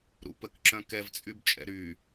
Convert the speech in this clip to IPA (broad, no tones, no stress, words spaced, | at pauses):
ɾṵpəkǁœ̃ kɛvt͡sʼybt͡ʃʼɛ̰ ɾy